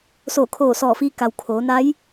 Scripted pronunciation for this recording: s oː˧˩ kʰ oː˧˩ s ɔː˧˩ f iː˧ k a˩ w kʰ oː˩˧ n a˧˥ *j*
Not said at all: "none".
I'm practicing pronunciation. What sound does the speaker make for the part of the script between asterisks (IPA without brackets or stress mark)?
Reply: j